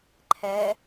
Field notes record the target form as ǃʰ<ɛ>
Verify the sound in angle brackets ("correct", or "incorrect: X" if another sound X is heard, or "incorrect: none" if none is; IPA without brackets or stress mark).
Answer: correct